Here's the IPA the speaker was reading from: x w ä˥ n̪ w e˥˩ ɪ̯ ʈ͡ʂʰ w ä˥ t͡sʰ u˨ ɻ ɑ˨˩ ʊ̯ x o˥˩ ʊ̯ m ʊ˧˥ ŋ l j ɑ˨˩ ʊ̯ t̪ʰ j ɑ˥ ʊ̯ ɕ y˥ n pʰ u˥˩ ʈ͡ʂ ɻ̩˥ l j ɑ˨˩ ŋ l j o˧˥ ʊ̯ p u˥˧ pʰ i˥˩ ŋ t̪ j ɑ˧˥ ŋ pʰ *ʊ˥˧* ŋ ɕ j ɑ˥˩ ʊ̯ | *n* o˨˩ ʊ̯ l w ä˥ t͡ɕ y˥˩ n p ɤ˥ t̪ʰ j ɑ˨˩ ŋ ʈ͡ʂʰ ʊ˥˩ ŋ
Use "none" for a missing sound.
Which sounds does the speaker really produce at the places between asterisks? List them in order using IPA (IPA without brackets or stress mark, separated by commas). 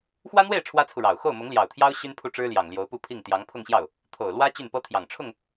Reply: ʊ˥˧, t̪ʰ